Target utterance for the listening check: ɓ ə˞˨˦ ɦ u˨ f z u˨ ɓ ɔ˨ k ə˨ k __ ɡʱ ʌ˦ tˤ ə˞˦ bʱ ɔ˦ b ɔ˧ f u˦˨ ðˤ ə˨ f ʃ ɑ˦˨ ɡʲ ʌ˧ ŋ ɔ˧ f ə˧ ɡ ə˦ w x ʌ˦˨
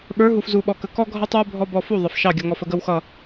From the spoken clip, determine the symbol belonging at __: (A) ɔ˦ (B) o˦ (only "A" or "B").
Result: A